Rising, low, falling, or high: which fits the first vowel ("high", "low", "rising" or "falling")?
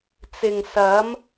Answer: low